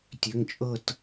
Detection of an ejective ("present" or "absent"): present